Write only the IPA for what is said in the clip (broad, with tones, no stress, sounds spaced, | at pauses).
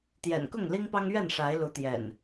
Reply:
t̪ j ɛ̰˨˩ n k ʊ˥˨ ŋ l i˦ ŋ p ɑ˦ ŋ ɥ ɛ˥˨ n ʂ a˨˦ ɪ̯ l u˨˦ t̪ j ɛ̰˨˩ n